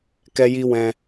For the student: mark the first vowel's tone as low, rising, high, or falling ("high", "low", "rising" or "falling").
high